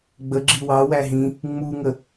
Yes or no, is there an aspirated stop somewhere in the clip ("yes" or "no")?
no